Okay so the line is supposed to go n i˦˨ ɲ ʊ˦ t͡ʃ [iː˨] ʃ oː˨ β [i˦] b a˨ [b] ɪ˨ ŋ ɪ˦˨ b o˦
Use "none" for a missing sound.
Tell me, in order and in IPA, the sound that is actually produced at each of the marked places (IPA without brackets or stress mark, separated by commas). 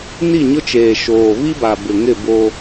eː˨, i˦, b